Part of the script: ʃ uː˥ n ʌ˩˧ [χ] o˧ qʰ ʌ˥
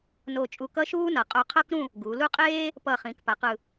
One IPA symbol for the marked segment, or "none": qʼ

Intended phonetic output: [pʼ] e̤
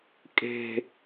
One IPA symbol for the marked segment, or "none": kʼ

